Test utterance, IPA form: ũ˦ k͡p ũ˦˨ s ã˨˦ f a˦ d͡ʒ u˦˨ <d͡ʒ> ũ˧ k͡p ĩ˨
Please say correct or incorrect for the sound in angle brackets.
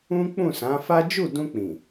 incorrect